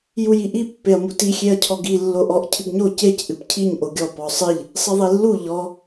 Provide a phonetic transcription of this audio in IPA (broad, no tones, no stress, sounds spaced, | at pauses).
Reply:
j u j i ʔ i pː e ɐ̯ m u t i xʲ e ɐ̯ cʰ ɔ ɡ i lː o ʔ ɔ ʔ cʰ ɨ ɡ ɲ o c e c ʔ ɨ p cʰ i ɲ ʔ o ɡʲ ɔ p ɔ sˤ ɨ ʎ | sˤ ɨ ðˤ i lː u ʎ ɔ